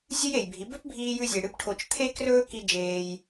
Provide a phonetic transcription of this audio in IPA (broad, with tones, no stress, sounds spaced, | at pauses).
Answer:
zʲ ɨ˦ j e˨ j bʱ i˨˦ b ɵ˦ p bʱ iː˧ j ʉ˧ zʲ e˨ ɽ ɨ˦ p ʈʰ o˧ t͡ʃ t̪ʰ e˦ k r ɵː˦ k i˦ d͡ʒ eː˧ j